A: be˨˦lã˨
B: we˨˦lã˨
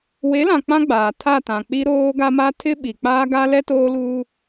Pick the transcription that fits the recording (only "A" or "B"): B